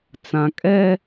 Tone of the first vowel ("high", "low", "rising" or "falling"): low